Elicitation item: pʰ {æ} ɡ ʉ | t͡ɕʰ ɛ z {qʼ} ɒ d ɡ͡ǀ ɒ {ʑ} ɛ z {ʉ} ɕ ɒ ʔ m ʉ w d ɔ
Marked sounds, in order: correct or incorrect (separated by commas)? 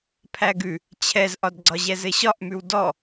correct, incorrect, correct, incorrect